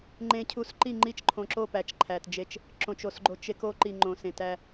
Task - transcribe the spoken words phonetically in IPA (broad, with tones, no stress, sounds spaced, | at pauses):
ŋ͡ǃ ẽ˨ cʰ u˨ s ǃ i˦˨ ŋ͡ǃ i˦˨ t͡ʃ ǃʰ õ˨ ǁ o˦˨ p æ˨ t͡ʃ ǃʰ æ˨ t d͡ʒ e˦ t͡ʃ | ǁ õ˨ t͡ʃ o˨ s ɡ͡ǃ o˨ t͡ʃ e˦ k o˦ ǃ i˨ ŋ͡ǃ õ˨ s ẽ˨ t æ˦